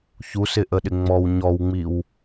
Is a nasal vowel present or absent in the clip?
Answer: absent